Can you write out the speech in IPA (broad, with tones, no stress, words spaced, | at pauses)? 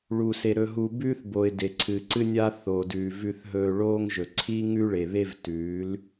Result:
ɭu˨se˨ ɾɵ˦ɦu˦ bʉː˦θbo˨ɪ̯ de˨ǀʰɨ˨ǀɨ˦nʲa˦ θo˨dʉː˨ vʉ˨θɦɵː˨ ɭoː˦ŋ ʒɵ˨ ǀʰi˦ ŋʉ˦ɭe˨βe˦vtʉː˨˦l